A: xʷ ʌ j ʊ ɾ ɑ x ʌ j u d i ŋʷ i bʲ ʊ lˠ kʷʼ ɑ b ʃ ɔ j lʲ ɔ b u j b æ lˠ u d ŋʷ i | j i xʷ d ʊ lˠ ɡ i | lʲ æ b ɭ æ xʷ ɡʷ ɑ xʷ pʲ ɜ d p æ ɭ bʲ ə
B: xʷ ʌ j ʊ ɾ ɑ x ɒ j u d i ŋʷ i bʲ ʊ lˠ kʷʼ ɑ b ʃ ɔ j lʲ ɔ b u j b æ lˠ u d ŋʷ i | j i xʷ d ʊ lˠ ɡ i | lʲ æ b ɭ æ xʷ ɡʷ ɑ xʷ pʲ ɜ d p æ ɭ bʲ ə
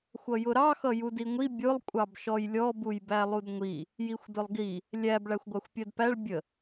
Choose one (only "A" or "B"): A